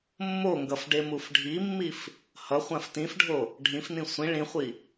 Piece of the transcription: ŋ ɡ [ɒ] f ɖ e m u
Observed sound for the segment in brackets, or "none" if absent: ʌ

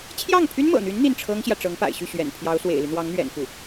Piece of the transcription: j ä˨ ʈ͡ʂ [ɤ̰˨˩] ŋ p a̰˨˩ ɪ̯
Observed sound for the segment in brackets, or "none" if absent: ɤ˧˥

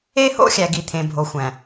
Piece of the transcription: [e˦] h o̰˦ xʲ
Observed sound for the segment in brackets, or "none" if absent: e˦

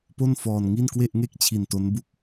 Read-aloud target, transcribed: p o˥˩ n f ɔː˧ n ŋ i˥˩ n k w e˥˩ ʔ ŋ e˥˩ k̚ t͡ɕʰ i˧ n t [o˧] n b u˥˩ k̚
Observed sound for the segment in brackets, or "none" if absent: o˦˥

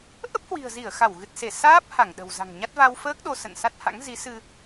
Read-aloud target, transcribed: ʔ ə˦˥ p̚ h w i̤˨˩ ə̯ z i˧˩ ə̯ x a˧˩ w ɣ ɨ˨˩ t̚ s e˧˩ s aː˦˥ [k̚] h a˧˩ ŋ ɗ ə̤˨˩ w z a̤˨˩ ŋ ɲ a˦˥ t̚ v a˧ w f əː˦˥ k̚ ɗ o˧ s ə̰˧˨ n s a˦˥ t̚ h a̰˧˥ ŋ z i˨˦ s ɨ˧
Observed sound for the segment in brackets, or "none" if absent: p̚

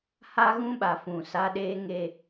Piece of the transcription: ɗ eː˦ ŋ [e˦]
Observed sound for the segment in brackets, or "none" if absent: e˦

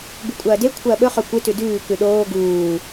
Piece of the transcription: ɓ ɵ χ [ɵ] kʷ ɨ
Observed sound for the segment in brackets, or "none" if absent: ɵ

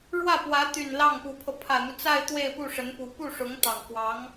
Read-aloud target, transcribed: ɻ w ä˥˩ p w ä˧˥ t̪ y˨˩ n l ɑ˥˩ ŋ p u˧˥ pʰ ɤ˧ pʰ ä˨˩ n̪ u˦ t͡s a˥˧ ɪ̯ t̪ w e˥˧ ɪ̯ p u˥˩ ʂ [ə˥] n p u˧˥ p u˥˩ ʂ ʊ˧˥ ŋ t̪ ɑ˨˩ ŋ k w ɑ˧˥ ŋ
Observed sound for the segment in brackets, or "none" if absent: ə˧˥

